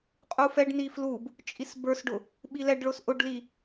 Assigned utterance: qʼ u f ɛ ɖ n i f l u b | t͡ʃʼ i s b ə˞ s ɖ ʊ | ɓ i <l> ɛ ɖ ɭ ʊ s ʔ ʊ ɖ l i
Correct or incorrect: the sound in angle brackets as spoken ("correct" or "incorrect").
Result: correct